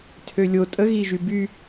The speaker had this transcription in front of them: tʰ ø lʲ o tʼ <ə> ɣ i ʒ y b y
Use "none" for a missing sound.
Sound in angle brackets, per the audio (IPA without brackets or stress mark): ə